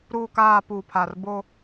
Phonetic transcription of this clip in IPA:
ɾ uː˨ k aː˨ p uː˨ pʰ aː˨ r b o˦

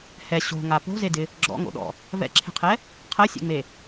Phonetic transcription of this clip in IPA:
h ɛ ɕ o̤ ŋ a p o̤ z e d ɪ | ɡ͡ǁ ɔ̰ ŋ o̰ ɗ ɔ̰ | v ɛ̰ ǁʰ e̤ qʰ ɛ | qʰ ɜ sʲ ḛ ŋ͡m e

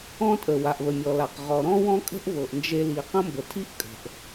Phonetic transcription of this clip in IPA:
ɔ̃˧ tʼ ə˩ w a˩ ʔ β ə˩ mʲ ɔ˩ l a˩ q ʁ ɔ˩ ɾ ɔ̃˥ w ɔ̃˥ kʼ ə̤˥ ʔ v ɤ˩ ʔ n d͡ʒ e˧ l i˩ q ə̃˥ m b ə˩ tʰ i˥ ʔ kʼ ə̤˩ ʔ

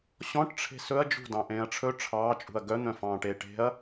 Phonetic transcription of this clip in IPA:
ɕ ɔ̃ ʈ ʈ͡ʂʰ e̤ s ɵ ɐ̯ d͡ʒ ṳ d ɑ̃ ʔ ẽː ɐ̯ ʈ͡ʂʰ ɵ ʈ͡ʂʰ ɑː t͡ʃʼ ṳ ɐ̯ ɡ œ n̪ œ̃ f ɑ̃ː ʈ eː ʈ e̤ ɐ̯

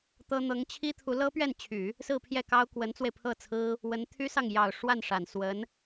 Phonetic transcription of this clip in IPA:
t̪ ɤ˥ n̪ ɤ˧˥ ŋ t͡ɕʰ i˥ t̪ʰ u˧˥ l ɤ˥ p ɥ ɛ˥˩ n t͡ɕʰ y˨˩˦ | s ɹ̩˥˧ pʰ j ɛ˥˩ k ɑ˥ ʊ̯ k w ə˧˥ n t͡s w e˧ ɪ̯ pʰ ɤ˥˩ t͡sʰ ɹ̩˥ | w ə˧˥ n t̪ʰ y˥ s ɑ˥˩ ŋ j ɑ˨˩ ʊ̯ ʂ w a˥˩ n ʂ a˨˩ n s w ə˧˥ n

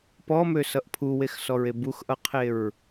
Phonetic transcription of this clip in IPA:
p ɔ m ø s ʌ ʔ pʰ u w e x s ɔ ɹ e b u x ʔ ʌ qʰ e ɹ

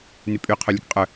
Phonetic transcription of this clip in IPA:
n y pʼ y qʰ ø lʲ ɛ k qʼ œ

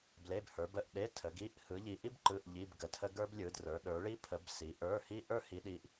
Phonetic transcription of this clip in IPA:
b l e˧˥˧ b h ə˞˨˦ b ə˧˥˧ ʔ ɗ e˧˥˧ tʰ ə˨˦ ɡ i˧˥˧ ʔ h ɯ˨˦ ʎ i˨˦ ʔ i˥ b ǃ ɯ˧˥˧ ʔ ʎ i˧˥˧ b ɡ ə˨˦ tʰ ə˥ ɡ ə˞˥ b lʲ ɯ˨˦ d r ə˞˨˦ ɗ ə˞˨˦ ɭ i˥ pʰ ə˨˦ b s i˨˦ ʔ ə˞˧˥˧ h i˥ ʔ ə˞˥ h i˨˦ ɗ i˨˦ ʔ

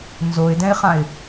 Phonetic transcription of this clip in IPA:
n z o ɪ̯ d ɛ̃ ɪ̯ χ ã ɪ̯

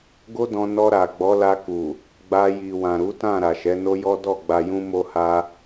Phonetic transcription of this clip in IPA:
ɡ o˦ d ɔ̃˧ n ɔ˧ ɾ a˨ ɡ͡b ɔ˨˦ l a˧ k u˨ | ɡ͡b a˧ j i˨ w ã˨ ɾ u˨˦ t ã˦˨ ɾ a˨ ʃ ɛ˨˦ n o˦ j ɔ˦ d ɔ˦˨ ɡ͡b a˧ j ũ˦ m o˦ h a˦

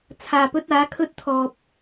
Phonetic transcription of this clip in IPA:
t͡sʰ aː˨ p ɵ˥ t̚ aː˨˥ kʰ ɵ˥ t̚ t̪ʰ ɔː˨ p̚

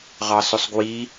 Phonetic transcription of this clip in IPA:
ʁ ɑ s ɵ sˤ ɡ w i

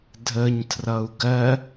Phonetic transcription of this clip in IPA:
dʱ ə ɲ tʰ r ʌ u̯ ɡ ɜ

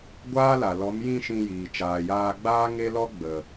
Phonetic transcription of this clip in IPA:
ɡʷ aː˦ l a˨ l ɔ˨˦ m j ĩ˦˨ ʃ ĩ˧ j iː˨ t͡ʃ aː˨ j aː˧ ɡ͡b aː˦ ŋ e˦ l ɔ˦ ɡ͡b ə˨

